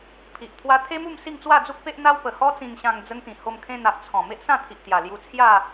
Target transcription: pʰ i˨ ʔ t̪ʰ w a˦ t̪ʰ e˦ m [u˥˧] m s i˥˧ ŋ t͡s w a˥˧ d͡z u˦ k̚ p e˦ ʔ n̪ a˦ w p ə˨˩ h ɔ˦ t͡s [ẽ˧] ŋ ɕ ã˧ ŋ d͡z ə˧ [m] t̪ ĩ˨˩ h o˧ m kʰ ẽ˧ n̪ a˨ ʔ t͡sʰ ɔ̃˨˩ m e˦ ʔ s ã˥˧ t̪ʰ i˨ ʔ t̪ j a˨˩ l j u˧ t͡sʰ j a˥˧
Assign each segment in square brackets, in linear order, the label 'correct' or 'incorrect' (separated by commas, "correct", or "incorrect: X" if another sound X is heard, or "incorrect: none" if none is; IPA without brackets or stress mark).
correct, incorrect: ĩ˧, incorrect: ŋ